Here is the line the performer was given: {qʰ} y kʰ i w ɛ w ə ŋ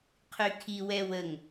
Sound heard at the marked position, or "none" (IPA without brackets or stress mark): qʰ